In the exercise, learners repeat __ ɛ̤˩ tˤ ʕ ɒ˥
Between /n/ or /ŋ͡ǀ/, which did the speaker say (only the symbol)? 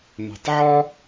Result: n